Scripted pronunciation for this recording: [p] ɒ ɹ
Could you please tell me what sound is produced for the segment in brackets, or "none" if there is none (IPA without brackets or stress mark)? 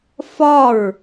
f